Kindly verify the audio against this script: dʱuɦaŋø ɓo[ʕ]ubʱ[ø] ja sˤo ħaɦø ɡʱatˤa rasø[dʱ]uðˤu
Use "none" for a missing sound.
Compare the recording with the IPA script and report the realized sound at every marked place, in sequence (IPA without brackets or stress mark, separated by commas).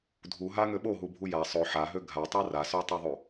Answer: ɦ, u, tˤ